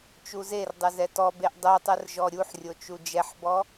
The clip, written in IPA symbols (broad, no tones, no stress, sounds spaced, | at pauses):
t͡ʃ u z e r dˤ ɨ z ɛ t ɔ b e ʔ dˤ u tˤ ɨ r ʒ ɔ ɾʲ u ħ rʲ o t͡ʃ u d͡ʒ ɛ ħ b ɔ